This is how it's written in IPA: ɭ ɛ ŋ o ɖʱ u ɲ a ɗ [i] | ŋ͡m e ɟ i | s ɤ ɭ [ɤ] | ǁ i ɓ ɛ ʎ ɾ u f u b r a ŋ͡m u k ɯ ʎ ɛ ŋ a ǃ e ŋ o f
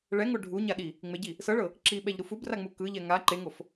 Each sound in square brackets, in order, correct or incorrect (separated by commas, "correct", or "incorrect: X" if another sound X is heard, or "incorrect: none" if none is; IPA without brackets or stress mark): correct, correct